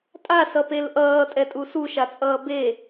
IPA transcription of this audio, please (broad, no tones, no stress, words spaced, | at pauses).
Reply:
tʼasʌpel ʔʌːtʼɛtʼu suʃat͡sʼʌː be